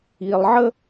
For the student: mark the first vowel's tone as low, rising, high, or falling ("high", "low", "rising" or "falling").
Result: low